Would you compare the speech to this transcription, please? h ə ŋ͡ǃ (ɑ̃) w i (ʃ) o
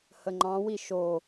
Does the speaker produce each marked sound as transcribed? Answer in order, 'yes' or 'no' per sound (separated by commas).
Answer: yes, yes